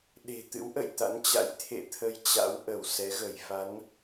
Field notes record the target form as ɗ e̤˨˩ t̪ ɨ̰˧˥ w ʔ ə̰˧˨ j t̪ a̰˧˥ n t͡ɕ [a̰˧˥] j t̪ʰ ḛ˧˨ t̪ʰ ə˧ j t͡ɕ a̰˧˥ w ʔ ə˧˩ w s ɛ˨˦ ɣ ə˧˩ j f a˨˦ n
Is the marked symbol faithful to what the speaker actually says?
yes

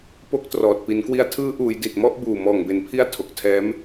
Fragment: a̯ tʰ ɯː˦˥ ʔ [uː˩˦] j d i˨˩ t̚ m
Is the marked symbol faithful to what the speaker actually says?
yes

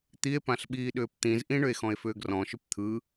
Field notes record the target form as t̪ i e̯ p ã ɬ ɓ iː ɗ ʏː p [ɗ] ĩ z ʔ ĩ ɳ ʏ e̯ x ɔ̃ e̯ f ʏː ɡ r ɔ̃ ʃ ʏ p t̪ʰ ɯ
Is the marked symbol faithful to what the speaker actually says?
no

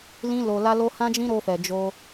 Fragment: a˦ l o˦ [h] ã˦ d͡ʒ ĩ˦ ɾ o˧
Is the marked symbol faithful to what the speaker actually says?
yes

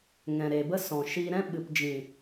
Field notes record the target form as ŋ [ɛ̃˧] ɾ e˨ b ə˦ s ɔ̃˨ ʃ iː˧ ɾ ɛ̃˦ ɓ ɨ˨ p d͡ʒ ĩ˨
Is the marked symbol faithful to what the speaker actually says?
no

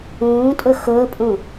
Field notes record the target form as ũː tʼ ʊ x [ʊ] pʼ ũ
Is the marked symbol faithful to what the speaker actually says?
no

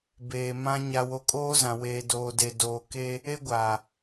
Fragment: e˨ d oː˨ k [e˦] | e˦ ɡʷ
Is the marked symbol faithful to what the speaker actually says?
yes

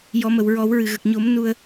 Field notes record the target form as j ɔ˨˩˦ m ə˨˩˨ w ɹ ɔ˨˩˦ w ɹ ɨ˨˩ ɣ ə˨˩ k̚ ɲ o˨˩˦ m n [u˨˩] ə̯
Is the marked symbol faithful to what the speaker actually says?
no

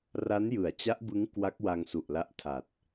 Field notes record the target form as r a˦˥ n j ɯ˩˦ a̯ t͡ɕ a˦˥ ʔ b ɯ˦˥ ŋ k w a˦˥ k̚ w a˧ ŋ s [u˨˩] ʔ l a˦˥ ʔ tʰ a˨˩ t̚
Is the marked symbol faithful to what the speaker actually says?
yes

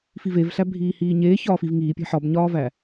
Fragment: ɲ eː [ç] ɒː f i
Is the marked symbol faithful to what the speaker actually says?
yes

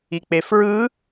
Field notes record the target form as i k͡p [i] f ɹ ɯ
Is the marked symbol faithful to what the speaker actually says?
no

